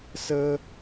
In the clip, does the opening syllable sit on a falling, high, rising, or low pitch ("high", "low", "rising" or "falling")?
high